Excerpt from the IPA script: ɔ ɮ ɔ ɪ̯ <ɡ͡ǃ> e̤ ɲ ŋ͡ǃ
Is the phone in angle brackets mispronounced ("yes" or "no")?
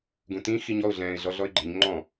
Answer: no